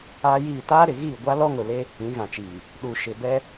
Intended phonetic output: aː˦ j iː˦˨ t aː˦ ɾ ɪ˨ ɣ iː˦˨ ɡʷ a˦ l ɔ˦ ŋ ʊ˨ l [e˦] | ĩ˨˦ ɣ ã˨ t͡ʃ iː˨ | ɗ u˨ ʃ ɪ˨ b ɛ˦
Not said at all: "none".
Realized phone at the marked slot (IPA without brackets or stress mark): e˦